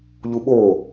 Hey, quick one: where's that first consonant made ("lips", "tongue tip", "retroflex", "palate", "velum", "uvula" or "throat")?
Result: palate